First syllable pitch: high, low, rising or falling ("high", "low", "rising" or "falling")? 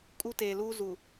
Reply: high